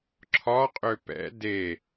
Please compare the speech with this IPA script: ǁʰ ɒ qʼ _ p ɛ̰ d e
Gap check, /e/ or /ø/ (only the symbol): ø